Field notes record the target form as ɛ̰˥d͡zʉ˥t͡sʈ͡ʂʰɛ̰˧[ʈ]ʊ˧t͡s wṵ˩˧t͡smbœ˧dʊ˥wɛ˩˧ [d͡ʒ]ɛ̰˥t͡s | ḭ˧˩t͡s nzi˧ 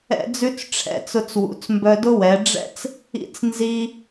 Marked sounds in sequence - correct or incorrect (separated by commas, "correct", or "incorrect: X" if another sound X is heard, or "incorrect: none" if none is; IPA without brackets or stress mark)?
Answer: incorrect: t͡s, incorrect: ɖ͡ʐ